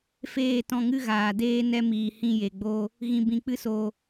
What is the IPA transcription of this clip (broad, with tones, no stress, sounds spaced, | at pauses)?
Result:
f eː˦˨ t ɔ̃˧ ŋ ɨ˦ ɣ aː˨ d eː˧ n ɛ˧ m iː˨ h ĩ˧ j e˨ ɡ͡b o˧ | ɣ ĩ˨ b ĩ˨ k͡p ɨ˦ s o˨